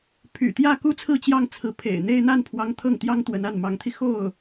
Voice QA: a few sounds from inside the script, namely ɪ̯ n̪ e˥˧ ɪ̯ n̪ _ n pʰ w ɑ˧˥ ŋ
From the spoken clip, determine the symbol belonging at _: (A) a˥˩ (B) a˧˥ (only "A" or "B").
A